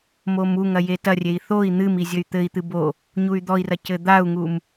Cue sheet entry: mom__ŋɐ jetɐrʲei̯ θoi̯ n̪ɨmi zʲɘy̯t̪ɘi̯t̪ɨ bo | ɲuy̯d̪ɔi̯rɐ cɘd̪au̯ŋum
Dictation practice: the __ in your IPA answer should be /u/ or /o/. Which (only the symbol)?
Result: u